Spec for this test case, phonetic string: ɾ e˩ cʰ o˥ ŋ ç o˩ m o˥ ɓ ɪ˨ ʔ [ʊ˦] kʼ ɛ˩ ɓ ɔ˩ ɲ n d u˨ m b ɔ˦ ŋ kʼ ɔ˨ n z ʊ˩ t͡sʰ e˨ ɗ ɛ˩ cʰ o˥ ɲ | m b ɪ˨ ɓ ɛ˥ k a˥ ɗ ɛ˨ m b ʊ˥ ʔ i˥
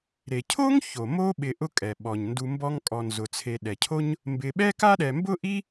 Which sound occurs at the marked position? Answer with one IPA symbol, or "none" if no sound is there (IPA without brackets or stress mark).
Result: ʊ˦